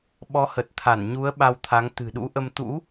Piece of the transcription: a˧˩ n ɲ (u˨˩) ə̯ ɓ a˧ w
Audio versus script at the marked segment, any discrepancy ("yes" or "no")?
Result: yes